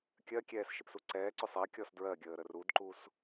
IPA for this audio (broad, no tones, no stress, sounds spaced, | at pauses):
kʲ ɜ kʲ ɛː s ʃ ɪ p s u ǀ ɛː ǀ ʏ sˤ ɜ kʲ ɔ s d ɹ ɜ ɡʲ əː ɾ ə r u d ǃ u s